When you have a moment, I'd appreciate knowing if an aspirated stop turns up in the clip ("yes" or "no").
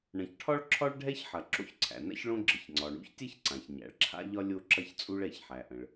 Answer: yes